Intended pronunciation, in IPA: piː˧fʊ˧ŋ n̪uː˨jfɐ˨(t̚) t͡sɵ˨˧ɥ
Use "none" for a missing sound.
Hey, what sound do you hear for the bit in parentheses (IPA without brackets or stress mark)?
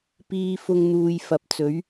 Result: p̚